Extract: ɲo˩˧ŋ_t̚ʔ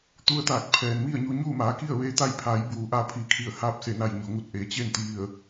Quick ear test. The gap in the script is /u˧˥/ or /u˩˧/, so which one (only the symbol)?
u˧˥